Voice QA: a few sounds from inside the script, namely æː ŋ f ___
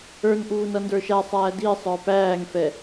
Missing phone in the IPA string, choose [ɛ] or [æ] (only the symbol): ɛ